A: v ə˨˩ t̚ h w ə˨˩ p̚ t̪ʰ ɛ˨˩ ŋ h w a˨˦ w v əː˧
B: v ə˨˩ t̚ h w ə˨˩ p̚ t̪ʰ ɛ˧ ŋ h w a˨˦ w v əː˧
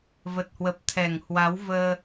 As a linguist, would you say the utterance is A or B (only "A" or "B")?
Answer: A